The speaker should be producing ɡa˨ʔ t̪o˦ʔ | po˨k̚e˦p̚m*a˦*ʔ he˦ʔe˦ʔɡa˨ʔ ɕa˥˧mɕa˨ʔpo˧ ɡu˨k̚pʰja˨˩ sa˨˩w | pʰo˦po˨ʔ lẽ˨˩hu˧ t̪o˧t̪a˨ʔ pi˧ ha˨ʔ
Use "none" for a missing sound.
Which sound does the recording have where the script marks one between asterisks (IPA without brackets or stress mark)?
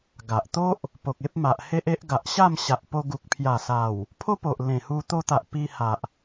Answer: a˨